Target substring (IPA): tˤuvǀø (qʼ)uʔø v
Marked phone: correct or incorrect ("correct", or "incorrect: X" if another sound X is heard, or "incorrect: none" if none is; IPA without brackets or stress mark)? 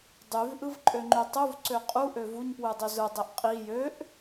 correct